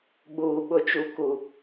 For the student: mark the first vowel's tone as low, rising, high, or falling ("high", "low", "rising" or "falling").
low